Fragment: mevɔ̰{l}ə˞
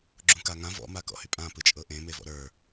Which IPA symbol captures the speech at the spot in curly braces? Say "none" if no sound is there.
ɾ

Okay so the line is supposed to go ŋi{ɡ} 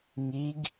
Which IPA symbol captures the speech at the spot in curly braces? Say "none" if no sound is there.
ɡ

